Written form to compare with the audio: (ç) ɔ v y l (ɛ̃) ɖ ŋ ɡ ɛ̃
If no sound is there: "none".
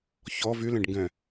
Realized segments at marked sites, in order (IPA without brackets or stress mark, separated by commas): ç, ɛ̃